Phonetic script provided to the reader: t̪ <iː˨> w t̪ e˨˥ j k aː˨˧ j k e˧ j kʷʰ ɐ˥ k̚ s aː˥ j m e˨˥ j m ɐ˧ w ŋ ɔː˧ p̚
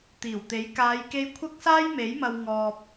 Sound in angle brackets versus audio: incorrect: iː˨˩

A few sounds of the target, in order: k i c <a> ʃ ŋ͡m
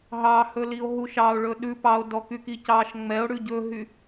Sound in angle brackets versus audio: incorrect: ɑ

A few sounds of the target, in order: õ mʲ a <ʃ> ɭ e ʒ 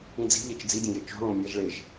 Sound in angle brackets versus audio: incorrect: ʒ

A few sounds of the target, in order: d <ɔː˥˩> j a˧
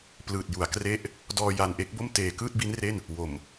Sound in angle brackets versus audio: incorrect: ɔː˧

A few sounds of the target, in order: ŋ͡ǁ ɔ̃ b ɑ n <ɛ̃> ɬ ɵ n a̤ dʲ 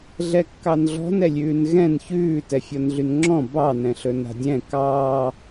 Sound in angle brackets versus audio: correct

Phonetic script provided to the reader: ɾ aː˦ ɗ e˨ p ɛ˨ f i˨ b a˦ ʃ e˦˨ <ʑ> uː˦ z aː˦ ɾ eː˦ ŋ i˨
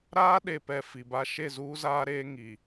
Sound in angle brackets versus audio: incorrect: z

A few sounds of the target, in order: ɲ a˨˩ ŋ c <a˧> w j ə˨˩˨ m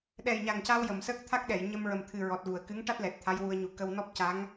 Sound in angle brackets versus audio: correct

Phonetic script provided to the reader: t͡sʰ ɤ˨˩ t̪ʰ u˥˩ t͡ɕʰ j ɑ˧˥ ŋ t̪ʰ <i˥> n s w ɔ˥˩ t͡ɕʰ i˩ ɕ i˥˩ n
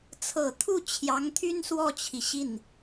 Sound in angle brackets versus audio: incorrect: y˥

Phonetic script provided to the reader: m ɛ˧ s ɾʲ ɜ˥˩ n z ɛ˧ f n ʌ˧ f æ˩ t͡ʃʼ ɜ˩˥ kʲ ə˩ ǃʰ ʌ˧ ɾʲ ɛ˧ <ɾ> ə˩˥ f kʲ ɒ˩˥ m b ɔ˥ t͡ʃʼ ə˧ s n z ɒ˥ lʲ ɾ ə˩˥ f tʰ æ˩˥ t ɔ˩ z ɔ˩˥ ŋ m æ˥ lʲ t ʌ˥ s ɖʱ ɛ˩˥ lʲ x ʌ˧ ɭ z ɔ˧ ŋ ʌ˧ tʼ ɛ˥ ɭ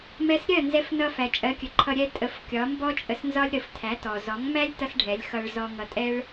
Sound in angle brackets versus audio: incorrect: tʼ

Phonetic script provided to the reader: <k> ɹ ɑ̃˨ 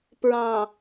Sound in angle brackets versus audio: incorrect: p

